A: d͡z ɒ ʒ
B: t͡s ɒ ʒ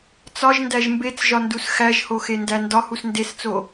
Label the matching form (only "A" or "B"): B